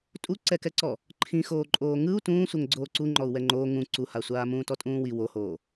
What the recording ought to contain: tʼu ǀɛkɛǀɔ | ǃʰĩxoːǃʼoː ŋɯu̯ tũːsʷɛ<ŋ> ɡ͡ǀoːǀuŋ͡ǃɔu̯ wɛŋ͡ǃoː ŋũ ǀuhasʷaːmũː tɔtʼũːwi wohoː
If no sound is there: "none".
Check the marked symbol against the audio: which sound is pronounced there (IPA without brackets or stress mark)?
ŋ